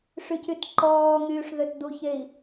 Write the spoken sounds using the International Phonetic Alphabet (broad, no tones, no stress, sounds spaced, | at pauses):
ʂ y c y t ǃ ɔː ŋ yː ʂ ð ø t d u ç e i̯